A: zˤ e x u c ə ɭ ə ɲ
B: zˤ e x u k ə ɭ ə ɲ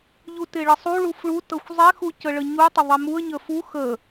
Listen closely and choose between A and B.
A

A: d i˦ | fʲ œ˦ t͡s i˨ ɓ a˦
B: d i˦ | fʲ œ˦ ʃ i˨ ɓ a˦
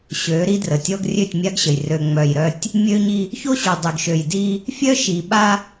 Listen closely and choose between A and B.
B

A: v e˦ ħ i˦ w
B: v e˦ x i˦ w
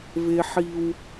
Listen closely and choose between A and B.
A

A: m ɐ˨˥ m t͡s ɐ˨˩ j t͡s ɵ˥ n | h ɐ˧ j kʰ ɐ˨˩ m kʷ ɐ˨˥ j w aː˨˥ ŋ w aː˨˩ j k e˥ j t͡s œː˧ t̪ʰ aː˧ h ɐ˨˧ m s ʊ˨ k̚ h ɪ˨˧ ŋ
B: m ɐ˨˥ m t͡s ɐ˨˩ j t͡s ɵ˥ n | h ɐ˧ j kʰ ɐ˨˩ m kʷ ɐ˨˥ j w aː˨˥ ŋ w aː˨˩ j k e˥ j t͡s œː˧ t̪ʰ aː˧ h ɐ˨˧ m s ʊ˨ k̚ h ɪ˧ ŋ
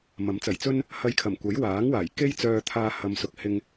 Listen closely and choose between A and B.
B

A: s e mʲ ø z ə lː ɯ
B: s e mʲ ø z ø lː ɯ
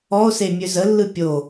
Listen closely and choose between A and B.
A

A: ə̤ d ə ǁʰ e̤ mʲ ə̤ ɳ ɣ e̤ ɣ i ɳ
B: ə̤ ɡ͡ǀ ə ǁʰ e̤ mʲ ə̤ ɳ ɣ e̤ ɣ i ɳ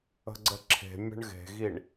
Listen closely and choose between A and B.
B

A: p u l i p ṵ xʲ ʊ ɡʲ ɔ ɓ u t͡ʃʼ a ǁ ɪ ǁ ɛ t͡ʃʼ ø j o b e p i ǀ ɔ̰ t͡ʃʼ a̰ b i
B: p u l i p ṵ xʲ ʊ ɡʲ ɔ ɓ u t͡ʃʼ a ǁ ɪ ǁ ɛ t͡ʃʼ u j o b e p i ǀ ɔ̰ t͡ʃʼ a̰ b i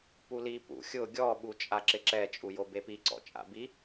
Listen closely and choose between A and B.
B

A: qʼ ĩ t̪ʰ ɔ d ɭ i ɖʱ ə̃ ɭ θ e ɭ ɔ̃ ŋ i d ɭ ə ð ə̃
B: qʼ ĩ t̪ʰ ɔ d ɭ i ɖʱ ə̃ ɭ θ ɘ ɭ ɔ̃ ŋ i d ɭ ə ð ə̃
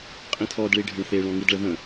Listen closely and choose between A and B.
A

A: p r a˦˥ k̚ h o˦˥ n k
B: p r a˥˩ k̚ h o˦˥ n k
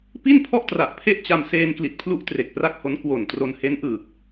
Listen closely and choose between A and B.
B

